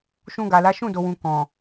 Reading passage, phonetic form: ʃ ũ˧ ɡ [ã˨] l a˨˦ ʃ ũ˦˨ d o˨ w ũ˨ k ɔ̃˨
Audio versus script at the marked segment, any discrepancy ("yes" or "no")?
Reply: yes